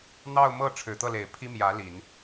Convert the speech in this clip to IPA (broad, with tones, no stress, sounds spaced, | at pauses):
n̪ ɑ˥˧ ʊ̯ m ɤ˥˩ ʈ͡ʂʰ ɻ̩˨˩ t̪ ɤ˥˩ l e˨˩ ɪ̯ pʰ i˥ m j ä˧˥ l i˨˩˦ n